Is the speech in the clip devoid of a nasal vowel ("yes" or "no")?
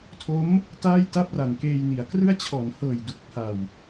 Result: yes